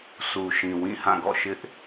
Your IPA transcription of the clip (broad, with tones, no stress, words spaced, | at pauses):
su˨ ʃĩ˨wĩ˦˨hã˦˨ɡɔ̰˦˨ ʃɪ˦ʔ